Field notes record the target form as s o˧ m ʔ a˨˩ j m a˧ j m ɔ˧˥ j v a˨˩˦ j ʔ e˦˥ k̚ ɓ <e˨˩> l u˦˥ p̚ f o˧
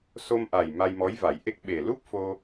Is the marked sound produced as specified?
yes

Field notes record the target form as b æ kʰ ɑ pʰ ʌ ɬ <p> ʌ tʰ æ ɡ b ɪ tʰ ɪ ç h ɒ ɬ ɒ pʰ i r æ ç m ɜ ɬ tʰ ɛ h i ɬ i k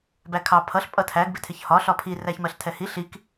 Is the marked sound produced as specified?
no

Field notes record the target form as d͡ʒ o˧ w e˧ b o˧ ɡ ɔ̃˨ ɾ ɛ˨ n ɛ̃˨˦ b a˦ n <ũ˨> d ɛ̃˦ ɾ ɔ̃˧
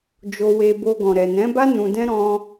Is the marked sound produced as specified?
no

